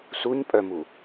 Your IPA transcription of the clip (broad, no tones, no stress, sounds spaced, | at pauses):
s u ɲ pʼ œ m u